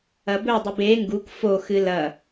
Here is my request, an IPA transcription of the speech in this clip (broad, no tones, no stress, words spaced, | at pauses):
ɐbɵdˤɨb e ŋɡuk foxɨ lɐ